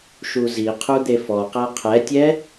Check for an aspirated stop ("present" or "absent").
present